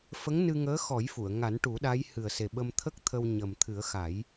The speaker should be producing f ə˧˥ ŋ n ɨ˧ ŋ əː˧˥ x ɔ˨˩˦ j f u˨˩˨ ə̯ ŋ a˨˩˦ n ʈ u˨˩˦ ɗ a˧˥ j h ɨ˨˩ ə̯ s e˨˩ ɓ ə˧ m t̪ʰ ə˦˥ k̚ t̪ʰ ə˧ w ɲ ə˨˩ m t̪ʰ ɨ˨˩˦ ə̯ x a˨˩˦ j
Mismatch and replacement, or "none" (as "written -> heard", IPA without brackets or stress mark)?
none